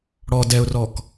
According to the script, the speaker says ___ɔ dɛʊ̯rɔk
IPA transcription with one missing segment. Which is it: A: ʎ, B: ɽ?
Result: B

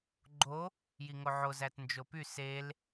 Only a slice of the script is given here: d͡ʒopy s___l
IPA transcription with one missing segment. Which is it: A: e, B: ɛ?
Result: A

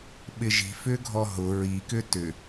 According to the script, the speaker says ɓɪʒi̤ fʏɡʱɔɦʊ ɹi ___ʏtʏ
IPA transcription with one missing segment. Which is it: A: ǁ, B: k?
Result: B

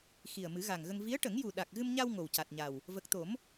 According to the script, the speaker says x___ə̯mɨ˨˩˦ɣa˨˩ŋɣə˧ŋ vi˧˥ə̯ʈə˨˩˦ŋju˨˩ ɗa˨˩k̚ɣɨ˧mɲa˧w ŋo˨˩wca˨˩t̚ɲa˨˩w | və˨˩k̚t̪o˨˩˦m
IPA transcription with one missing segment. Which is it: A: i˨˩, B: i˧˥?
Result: A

